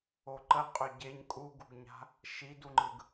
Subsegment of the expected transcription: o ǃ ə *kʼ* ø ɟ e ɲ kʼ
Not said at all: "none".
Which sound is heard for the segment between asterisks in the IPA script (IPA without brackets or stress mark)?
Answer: qʼ